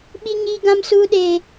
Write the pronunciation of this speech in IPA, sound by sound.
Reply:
ɓ i˦ ɲ iː˦ ɡ ã˦ m s uː˦ ɗ eː˦

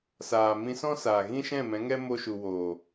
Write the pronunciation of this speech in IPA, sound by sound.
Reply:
s aː˨ m ĩ˧ s ɔ̃˦ s aː˨ ɣ ĩ˦ ʃ ɛ̃˦˨ m ɛ̃˨˦ ŋ ɛ˦ m o˦ ʃ u˧ w oː˨

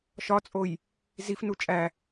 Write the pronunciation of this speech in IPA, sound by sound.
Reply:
ʃ ɒ t͡sʼ o j | z i f n u t͡ʃʼ æ

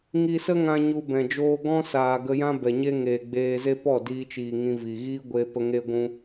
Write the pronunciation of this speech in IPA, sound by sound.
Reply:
ŋ i˧ s ə˦ ŋ ã˧ ɲ u˧ b ɛ̃˨ d͡ʒ oː˦ ɡ ɔ̃˦ s aː˨ ɡ ə˧ j ã˦ b ɛ˨ ɲ e˦ ŋ eː˨ ɡ͡b eː˧ z e˦ p ɔ˦˨ d iː˧ t͡ʃ iː˨ ŋ ĩ˧ v i˨ ɣ iː˦ ɡʷ e˧ p ə˧ ŋ e˦ ɡʷ ũ˦

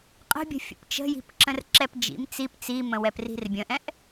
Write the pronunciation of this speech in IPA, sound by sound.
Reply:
qʼ ə̤ bʲ ə̤ fʲ ə̰ p t͡ʃ ə̤ j i̤ p ǁ ə̃ r ǁ ɛ p d͡ʒ ḭ m t͡s i p t͡s i m ə̃ w ɛ p r i̤ r bʲ ə̃ ʔ ɛ̃ ʔ

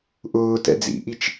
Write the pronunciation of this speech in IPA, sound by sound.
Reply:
ʔ ʊː t ɛ̰ d͡z ḭ ʔ i t͡ʃ

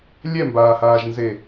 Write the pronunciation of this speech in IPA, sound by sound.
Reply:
lʲ ɛ m b aː h aː ʒ n z e

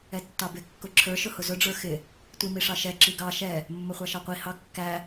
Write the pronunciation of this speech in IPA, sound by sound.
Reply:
ɛ tː ɑ b ɪ kː ʊ ǁʰ ə˞ ʃ ʊ h ʊ z ʊ ɖ͡ʐ ə˞ x ɪ | tʷ i m i ʂ ɑ ʃ ɛ ǁ i ɡ ɑ ʃ ɛ | mː ə χʷ ɑ ʃ ɑ qʷ i h ɑ kː æ

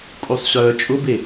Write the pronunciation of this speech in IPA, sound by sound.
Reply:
kʼ u sˤ ɕ œː t͡ʃʼ ʊ b e

